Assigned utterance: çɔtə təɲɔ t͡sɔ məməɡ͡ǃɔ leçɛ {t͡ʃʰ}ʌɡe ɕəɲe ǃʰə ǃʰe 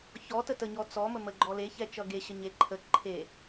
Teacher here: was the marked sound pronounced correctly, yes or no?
no